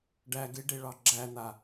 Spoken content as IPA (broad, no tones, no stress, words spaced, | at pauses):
ɖæ ɡeɖeɭɑ ɡ͡ǁæn̪a